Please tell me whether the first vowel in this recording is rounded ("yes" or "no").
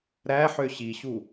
no